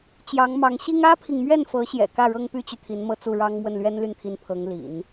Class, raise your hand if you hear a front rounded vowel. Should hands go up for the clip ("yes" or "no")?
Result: yes